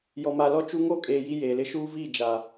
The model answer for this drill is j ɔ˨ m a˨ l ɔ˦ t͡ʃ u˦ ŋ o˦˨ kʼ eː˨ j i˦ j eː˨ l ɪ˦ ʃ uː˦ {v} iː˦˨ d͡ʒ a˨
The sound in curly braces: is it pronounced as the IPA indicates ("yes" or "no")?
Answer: yes